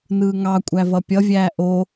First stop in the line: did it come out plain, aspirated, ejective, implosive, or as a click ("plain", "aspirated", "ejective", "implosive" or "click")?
ejective